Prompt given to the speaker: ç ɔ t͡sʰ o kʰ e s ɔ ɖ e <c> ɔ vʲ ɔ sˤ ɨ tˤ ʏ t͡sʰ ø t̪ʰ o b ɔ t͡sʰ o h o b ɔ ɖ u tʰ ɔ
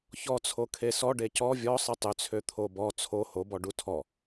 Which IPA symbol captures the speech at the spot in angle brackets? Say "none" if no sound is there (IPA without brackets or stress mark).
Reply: c